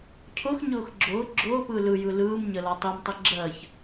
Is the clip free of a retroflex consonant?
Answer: yes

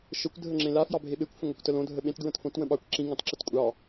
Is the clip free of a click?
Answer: no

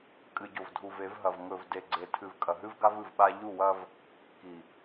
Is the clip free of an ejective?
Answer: no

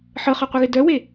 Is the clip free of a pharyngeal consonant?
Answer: no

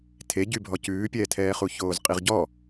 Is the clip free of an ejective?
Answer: no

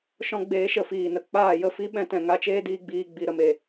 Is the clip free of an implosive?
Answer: no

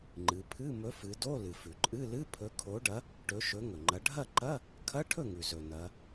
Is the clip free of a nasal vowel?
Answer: yes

